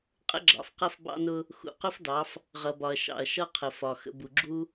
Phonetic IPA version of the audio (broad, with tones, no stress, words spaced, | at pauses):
qʼə̰˦ɡ͡ǁɑ̰˨fqʌ˦f bɑ̰˦nʊ˦ | xṵ˨qʊ˦fdɑ˨˦f | ʁʌ˨bɒ˨ɐ̯ ʃɑ̰˨ɐ̯ ʃʌ˦qʰə˨fɒ˨ xə̰˨bu˨ɡ͡ǁu˦